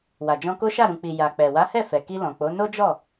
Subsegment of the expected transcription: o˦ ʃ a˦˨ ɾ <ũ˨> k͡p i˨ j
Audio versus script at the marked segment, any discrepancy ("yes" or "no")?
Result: no